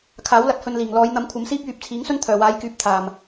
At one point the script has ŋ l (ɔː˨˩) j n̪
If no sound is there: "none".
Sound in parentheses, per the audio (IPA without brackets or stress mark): ɔː˨˧